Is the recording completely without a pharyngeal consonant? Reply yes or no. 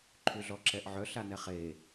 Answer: no